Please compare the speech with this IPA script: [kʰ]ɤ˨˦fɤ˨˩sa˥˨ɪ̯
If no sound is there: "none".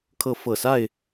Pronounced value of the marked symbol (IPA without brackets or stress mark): kʰ